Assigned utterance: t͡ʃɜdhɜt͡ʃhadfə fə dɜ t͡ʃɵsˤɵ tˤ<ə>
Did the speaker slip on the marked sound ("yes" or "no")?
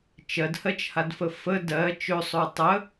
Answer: no